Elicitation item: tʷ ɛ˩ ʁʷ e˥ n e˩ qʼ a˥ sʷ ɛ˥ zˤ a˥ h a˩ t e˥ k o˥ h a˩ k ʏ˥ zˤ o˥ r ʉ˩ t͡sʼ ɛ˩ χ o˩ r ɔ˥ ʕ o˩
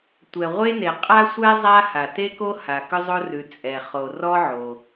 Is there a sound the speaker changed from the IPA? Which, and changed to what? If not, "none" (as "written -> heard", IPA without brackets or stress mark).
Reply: none